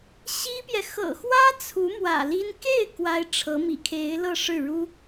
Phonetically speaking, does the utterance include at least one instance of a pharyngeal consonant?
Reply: no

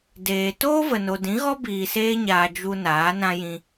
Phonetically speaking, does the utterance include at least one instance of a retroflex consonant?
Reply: no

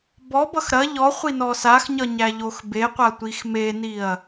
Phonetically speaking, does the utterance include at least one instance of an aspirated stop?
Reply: no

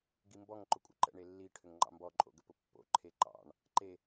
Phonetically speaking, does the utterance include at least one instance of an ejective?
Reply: yes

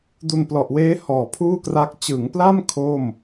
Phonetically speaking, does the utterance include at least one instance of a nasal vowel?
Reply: no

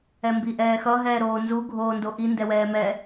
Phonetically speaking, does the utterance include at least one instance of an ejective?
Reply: no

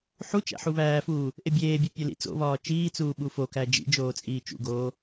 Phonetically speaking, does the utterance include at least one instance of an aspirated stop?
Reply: no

